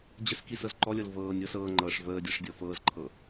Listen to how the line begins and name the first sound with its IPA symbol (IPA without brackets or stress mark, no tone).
d͡ʑ